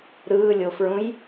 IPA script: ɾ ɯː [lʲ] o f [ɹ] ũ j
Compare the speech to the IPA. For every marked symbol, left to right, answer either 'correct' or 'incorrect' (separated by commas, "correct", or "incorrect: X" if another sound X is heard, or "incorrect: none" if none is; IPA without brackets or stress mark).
correct, correct